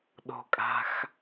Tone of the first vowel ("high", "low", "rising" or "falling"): low